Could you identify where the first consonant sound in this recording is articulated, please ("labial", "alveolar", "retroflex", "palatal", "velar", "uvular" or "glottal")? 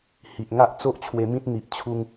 glottal